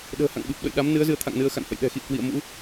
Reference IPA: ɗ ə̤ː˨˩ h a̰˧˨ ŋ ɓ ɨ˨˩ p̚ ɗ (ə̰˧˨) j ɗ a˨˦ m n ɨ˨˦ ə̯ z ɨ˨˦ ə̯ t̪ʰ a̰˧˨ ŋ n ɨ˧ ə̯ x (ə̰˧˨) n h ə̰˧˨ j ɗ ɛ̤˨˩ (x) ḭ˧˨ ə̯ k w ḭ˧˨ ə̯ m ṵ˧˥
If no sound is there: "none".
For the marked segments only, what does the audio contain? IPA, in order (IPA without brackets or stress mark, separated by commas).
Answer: ə̰˧˨, a̰˧˨, x